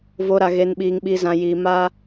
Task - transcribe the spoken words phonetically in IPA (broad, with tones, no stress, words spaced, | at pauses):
vo˧ ɾa˧ɣe˧nɓiː˧ŋ ɓi˧zã˧ jiː˧ma˦